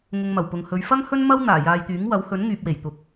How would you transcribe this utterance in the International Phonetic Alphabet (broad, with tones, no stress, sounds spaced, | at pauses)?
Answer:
ŋ ʊ˨ ŋ m ɐ˨˩ w p ʊ˨ ŋ h ɵ˨˧ ɥ f ɐ˥ ŋ h ɵ˥ n m ɐ˥ w n̪ aː˨˩ j aː˨ j t̪ yː˨˥ ŋ w ɐ˨˥ w h ɵ˨˥ n ŋ yː˨ p̚ w e˨˩ j t̪ ʊ˨ k̚